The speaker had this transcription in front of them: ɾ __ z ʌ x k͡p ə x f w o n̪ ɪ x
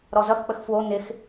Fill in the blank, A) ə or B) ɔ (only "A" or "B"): B